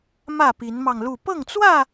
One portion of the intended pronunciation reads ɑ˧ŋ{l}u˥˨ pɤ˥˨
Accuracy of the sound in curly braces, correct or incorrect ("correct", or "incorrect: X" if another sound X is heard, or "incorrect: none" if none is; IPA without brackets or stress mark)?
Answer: correct